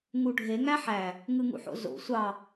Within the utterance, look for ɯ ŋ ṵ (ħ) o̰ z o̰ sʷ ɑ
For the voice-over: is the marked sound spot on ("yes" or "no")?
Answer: yes